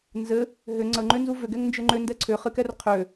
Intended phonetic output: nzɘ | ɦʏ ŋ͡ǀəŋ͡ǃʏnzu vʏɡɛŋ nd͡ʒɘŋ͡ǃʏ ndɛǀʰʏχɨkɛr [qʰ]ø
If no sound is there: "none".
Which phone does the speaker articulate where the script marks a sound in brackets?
qʰ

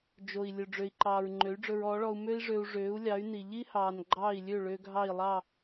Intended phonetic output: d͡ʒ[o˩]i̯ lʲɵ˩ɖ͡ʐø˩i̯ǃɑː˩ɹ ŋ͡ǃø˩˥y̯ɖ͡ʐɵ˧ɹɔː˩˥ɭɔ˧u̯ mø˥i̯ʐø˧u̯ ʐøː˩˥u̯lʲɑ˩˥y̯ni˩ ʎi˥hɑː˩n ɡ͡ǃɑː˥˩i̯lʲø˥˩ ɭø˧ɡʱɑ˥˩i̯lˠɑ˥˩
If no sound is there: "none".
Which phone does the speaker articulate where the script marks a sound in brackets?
o˩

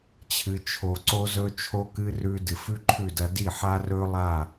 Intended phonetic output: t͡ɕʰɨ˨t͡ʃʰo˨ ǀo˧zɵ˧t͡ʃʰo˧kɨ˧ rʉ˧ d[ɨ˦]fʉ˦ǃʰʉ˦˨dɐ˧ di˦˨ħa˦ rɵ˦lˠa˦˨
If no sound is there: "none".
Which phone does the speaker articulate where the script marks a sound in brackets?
ɨ˨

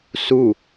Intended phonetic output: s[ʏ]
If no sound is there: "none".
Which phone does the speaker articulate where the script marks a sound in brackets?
u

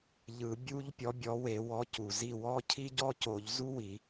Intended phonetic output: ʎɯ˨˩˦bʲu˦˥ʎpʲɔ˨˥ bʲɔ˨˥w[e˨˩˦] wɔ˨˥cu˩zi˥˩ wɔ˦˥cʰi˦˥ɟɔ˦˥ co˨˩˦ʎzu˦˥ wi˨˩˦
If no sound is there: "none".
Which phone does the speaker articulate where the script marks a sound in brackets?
e˨˩˦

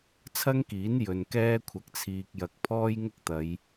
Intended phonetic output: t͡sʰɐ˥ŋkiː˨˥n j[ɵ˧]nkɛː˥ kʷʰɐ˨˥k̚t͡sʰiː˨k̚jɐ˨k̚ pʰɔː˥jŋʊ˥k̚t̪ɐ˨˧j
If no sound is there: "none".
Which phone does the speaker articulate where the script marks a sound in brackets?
ɵ˨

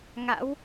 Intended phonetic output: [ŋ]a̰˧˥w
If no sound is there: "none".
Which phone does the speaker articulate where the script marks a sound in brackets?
ŋ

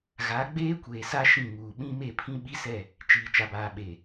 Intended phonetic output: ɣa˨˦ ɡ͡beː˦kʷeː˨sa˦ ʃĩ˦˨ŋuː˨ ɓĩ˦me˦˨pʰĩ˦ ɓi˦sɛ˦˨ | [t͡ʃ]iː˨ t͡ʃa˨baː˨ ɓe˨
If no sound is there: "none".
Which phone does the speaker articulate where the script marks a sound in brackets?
t͡ʃ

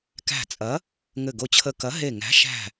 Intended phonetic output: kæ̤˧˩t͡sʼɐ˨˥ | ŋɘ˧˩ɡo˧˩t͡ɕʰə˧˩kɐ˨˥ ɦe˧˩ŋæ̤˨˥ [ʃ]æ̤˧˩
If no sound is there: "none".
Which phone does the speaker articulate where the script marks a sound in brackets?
ʃ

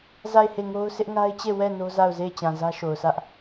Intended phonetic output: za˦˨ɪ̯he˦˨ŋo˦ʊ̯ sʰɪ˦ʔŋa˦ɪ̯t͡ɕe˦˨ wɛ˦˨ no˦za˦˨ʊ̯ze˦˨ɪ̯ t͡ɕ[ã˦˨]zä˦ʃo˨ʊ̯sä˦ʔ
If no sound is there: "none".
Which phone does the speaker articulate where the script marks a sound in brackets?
ã˨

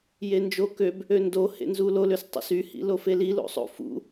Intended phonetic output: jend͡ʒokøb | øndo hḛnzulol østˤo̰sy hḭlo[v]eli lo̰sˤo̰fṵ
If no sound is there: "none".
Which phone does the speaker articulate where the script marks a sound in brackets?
f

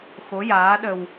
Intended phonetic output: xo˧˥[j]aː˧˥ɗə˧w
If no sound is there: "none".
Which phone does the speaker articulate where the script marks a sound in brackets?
j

